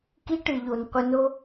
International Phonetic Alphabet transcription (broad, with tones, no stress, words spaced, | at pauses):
ki˦ʈɨ˨ ʎo˨nqʷɨ˧no˦